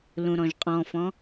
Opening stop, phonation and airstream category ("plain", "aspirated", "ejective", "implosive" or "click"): ejective